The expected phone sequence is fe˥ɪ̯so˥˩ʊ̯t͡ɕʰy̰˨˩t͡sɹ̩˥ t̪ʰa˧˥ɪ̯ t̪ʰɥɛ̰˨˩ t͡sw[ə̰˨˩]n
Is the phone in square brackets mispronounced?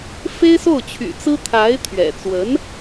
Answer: yes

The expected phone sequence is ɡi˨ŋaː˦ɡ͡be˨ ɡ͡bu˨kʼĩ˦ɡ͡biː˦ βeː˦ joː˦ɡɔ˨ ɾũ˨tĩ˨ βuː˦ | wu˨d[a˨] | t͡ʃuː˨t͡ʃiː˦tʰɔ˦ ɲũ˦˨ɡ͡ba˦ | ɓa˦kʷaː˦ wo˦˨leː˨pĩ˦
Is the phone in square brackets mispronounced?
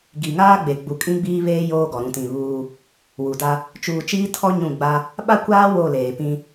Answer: yes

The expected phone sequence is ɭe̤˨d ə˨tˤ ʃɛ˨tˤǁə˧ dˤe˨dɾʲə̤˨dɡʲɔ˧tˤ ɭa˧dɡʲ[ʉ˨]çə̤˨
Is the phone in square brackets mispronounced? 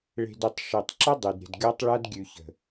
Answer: no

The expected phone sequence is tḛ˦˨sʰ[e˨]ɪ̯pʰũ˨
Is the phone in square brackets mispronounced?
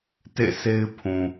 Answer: yes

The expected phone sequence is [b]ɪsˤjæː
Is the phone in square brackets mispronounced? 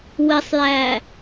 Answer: yes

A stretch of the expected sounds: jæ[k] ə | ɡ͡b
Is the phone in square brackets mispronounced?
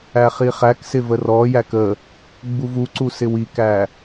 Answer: no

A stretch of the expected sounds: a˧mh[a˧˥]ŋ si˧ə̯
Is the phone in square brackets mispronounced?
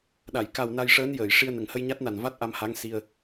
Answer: no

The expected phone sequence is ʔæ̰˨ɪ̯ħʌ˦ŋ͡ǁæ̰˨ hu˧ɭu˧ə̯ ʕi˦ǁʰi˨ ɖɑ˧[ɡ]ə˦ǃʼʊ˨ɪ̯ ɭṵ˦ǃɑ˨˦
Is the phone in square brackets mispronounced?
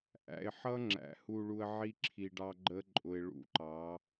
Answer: yes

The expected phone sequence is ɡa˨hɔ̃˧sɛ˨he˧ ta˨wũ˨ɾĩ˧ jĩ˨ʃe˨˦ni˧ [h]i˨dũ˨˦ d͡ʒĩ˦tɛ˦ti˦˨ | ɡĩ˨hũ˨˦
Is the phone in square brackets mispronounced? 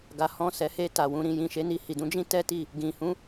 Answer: no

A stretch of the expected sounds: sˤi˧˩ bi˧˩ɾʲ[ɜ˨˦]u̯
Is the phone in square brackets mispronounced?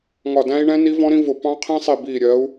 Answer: no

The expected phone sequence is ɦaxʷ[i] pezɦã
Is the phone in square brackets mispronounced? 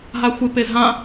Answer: yes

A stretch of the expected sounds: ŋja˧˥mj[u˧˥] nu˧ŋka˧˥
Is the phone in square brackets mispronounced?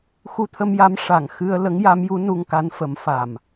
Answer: no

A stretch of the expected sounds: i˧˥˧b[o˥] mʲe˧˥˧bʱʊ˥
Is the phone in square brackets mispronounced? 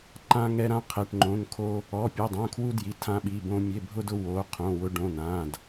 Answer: yes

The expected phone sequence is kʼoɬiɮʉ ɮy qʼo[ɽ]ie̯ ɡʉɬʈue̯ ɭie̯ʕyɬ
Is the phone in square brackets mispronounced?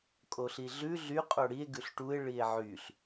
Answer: no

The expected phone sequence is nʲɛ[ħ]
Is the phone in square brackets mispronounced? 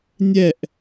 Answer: yes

